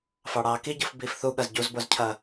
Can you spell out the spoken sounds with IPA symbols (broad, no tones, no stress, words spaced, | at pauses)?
fɑɽɑːkiɟɯf biːfθuɠɐz ɟuzbozcʰɐ